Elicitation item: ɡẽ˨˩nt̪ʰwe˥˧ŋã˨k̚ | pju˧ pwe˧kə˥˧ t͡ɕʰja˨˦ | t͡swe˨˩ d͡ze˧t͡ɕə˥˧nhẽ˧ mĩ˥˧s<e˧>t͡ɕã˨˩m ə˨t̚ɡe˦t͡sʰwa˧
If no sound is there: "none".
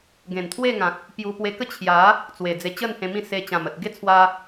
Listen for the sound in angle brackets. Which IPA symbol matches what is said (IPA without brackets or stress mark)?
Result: e˧